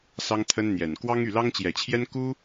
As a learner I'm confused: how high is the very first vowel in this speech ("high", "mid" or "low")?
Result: low